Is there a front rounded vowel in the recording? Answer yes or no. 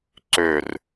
yes